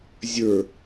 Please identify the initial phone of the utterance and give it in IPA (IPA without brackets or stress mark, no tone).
zʲ